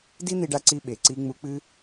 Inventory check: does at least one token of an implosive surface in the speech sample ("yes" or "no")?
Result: yes